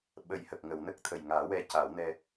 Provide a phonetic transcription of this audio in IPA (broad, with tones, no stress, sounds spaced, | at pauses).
ɓ ə˨˩˦ j h ə˨˩ k̚ ŋ ə˨˩˨ w n ə˦˥ k̚ t̪ʰ ə˨˩ j ŋ aː˨˩˦ w ɛ˧ c a˨˩˦ w n ɛ˧